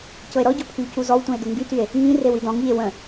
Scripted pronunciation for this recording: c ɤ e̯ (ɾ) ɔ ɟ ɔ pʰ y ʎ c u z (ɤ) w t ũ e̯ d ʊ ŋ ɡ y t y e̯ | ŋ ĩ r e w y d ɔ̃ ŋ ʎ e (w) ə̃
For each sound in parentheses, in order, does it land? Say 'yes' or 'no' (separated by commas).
yes, no, yes